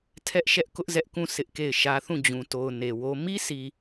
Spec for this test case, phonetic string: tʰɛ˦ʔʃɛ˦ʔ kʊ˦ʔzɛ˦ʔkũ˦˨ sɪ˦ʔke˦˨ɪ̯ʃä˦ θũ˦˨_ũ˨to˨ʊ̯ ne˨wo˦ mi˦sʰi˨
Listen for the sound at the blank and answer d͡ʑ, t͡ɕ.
d͡ʑ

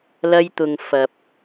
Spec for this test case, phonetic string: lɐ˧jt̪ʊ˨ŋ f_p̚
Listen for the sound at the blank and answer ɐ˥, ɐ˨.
ɐ˨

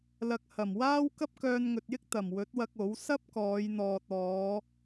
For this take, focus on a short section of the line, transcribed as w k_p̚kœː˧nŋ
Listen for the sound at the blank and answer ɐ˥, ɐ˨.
ɐ˥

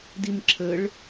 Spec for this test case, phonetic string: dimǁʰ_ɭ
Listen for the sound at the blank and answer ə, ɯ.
ə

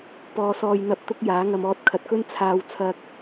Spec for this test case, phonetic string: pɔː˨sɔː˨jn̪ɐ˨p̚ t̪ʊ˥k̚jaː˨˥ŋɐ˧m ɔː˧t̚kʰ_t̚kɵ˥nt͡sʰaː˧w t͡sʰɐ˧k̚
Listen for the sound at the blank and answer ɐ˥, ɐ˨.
ɐ˨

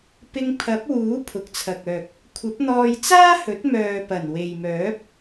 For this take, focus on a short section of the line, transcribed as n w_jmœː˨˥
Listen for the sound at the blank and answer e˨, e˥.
e˨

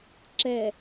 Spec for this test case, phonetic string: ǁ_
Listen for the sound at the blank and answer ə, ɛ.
ɛ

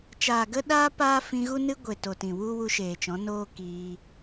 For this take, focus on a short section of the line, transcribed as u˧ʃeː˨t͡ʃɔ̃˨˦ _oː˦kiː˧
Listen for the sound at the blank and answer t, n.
n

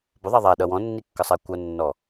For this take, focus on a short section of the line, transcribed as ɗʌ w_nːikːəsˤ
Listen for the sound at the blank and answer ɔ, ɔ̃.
ɔ̃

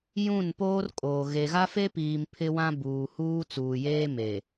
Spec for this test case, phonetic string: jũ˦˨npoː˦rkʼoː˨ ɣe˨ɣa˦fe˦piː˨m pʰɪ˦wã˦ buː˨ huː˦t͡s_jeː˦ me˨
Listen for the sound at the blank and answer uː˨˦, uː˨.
uː˨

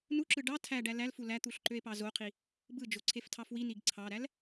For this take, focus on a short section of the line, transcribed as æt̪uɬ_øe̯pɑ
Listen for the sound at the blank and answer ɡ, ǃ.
ǃ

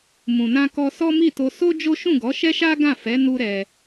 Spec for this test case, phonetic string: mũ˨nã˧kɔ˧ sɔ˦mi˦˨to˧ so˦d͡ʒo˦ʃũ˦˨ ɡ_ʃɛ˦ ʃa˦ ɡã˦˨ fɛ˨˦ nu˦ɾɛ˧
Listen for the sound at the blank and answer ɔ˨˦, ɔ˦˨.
ɔ˨˦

